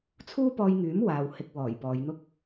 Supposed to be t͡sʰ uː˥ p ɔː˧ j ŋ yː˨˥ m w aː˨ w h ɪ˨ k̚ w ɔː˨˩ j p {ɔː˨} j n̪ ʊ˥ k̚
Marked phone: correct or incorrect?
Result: incorrect